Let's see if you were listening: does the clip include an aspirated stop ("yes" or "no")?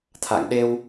yes